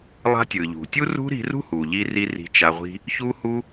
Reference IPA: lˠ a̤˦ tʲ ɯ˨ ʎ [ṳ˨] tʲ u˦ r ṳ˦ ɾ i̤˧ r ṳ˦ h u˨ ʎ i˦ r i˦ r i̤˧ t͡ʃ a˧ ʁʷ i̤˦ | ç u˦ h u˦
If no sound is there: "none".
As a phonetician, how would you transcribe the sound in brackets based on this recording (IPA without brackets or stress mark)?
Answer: ṳ˨